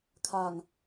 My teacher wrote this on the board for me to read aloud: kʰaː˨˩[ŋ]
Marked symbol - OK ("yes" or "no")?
yes